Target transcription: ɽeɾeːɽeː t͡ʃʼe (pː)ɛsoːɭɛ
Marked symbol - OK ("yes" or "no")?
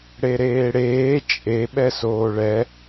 no